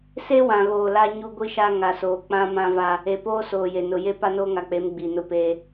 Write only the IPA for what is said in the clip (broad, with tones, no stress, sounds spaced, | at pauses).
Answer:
s e˦ w ã˨ ɣ oː˨ l a˦ ɲ u˦ ɡʷ i˦ ʃ a˦ ŋ a˨ s oː˨ k͡p ã˦ m ã˦ v a˦ | e˨ p oː˦ s oː˨ j e˨ n ʊ˨ j e˦ p a˦ n oː˦ ŋ a˨ k͡p e˨˦ m ɡ͡b i˨ n ʊ˦ p eː˦